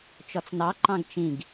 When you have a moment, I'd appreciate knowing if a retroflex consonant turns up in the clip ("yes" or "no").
no